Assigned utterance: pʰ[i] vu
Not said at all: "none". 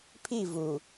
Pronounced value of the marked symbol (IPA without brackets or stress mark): i